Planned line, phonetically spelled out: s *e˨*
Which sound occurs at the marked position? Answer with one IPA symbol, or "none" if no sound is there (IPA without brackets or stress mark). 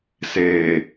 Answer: eː˨